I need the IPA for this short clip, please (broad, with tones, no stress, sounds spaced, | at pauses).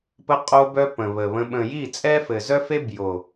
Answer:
p ə˧ qʼ o˧ b œ˧ p ə̃˨ β ə˨ β ə̃˧ ɓ ə̃˨ j i˦˨ t͡sʼ ɛ˦ f ɘ˨ z œ˦ f e˦ b j o˨